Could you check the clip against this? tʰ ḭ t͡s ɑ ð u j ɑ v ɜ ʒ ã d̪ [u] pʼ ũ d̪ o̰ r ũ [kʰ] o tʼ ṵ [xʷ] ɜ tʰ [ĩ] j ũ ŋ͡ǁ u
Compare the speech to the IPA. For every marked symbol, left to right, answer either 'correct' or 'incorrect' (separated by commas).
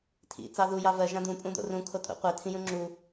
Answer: incorrect, correct, incorrect, correct